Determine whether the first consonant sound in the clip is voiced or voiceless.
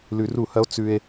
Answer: voiced